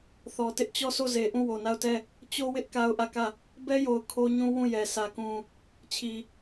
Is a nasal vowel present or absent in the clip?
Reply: present